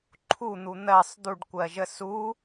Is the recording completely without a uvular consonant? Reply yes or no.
yes